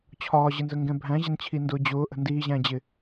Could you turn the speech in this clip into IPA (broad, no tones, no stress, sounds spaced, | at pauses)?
t͡ɕʰ ɒː ʑ ɪ n z ə ŋ ɡ ɛ̃ bʱ æ̃ ʑ ɪ n t͡ɕʰ i n d ʊː d͡ʑ ʊː ʔ ə̤ n d iː ʑ æ̃ d͡ʑ ɪ